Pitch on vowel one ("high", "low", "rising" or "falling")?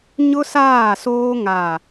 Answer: high